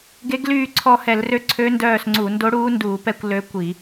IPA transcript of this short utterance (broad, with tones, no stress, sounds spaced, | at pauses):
ɡ e˧˥ ɡ l yː˦˨ ǀʰ ɔ˦˨ h ɛ˧˩˧ l r ø˧˥ ǀʰ ø˧˥ n d œː˦˨ s ŋ͡ǀ u˧˩˧ n d o˧˥ ɽ uː˧˥ n d uː˧˩˧ p ɛ˦˨ kʷ l ø˧˥ kʷ i˧˩˧